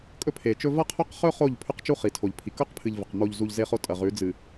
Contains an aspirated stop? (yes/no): yes